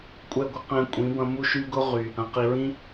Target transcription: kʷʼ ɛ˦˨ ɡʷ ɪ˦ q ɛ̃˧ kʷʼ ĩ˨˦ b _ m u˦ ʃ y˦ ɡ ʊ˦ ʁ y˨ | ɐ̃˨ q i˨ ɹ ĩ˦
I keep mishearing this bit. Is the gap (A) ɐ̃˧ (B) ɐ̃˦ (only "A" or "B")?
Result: A